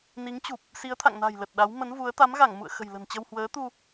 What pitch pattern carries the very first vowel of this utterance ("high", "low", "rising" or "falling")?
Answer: rising